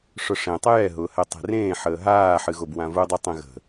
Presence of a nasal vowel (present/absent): present